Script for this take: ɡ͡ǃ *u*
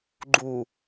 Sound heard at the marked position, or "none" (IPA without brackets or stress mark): u